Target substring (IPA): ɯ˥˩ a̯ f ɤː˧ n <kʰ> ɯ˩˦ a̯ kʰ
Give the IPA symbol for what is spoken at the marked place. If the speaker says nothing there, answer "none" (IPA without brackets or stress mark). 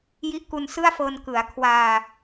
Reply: k